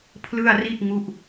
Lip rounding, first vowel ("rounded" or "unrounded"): unrounded